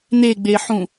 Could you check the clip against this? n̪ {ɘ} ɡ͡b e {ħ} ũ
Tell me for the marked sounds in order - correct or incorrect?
incorrect, correct

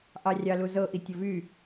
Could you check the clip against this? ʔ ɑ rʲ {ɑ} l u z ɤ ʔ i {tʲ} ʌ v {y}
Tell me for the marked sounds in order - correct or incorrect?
correct, correct, correct

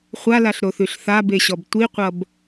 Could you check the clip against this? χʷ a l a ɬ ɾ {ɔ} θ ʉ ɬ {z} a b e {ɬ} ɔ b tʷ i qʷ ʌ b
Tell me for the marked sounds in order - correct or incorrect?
incorrect, incorrect, incorrect

